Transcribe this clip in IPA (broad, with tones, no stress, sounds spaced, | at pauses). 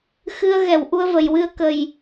x ɨ˧ ə̯ ɣ ɛ˨˩˨ w ʔ u˧ ə̯ v ə˨˩˨ j w ɨ˧ ə̯ k ə˨˩ j